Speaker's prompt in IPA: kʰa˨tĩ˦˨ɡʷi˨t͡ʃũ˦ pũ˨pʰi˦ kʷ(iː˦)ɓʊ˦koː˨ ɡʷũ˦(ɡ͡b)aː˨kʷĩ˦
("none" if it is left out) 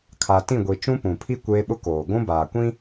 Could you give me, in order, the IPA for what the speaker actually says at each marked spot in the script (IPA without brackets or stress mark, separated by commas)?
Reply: eː˦, b